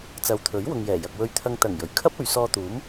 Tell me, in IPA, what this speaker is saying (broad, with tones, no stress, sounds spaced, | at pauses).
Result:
t͡s ɐ˨˧ w t̪ʰ ɵ˨˥ ɥ w ʊ˨ ŋ j ɛː˨˩ j ɐ˨ k̚ w ɵ˧ ɥ t̪ʰ ɐ˧ ŋ t̪ ɐ˨˩ ŋ j ɵ˨˩ ɥ kʰ ɐ˥ p̚ ɵ˨˧ ɥ s ɔː˧ t̪ uː˨˥ m